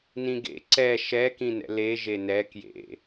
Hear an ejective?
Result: no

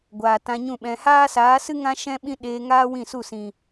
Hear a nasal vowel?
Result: yes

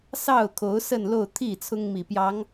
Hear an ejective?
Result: no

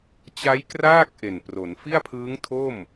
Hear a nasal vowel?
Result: no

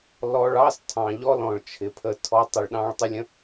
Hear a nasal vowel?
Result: yes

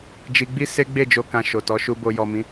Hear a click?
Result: no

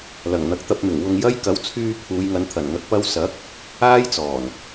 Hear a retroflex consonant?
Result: no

